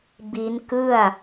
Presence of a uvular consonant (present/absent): absent